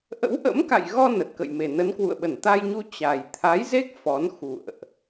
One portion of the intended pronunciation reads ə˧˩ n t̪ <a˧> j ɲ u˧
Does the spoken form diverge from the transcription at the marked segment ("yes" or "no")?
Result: no